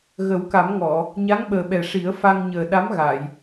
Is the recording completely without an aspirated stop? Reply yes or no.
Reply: yes